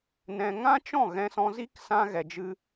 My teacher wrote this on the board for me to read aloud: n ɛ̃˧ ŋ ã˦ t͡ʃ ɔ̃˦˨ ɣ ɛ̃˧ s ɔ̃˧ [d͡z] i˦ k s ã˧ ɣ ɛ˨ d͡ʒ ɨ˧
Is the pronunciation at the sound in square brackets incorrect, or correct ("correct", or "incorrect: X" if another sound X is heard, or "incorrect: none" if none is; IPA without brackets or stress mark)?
incorrect: z